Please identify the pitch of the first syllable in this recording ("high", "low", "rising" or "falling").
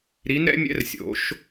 rising